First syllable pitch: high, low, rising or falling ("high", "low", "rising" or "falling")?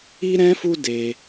high